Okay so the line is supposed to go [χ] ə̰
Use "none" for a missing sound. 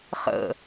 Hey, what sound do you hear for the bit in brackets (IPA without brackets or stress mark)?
χ